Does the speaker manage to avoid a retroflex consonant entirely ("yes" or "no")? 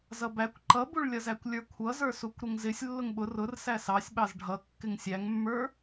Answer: no